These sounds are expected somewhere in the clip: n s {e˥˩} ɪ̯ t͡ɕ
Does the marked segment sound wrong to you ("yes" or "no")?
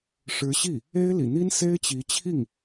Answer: yes